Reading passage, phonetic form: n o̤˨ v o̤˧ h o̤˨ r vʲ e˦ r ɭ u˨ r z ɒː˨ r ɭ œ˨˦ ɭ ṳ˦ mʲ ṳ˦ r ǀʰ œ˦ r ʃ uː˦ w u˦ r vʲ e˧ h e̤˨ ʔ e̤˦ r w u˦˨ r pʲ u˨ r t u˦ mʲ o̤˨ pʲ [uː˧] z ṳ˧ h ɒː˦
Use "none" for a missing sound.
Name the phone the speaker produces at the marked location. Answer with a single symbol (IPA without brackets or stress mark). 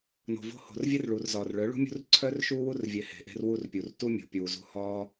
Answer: uː˨